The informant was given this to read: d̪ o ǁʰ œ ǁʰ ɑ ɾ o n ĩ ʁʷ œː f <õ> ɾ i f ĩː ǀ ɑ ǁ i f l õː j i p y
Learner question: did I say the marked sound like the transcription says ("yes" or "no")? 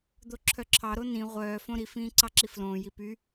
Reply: yes